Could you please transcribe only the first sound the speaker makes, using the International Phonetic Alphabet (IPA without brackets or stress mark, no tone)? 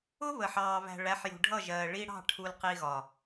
ʊ